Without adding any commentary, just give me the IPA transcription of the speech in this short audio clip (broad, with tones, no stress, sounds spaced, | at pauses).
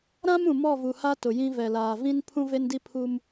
ɾ ã˦ m ũ˨ m ɔ˦˨ v u˨ h a˦ t ʊ˨ j ĩ˦ v ɛ˨ l aː˨ v ĩ˦ n pʰ ũ˦ v e˦ n d i˦ pʰ u˦ m